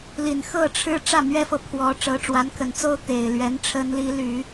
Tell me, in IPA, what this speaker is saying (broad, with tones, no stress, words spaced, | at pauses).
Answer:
li˨˩nxɤ˥˩ʈ͡ʂʰɻ̩˥ ʈ͡ʂä˥˩mɥɛ˥fɤ˧˥ pʰwɔ˧˥ ʈ͡ʂɤ˧˥ʈ͡ʂwa˧˥nkʰə˨˩nt͡so˥ʊ̯ t̪e˨˩ɪ̯lɥɛ˧˥n ʈ͡ʂʰə˥n li˥ly˨˩˦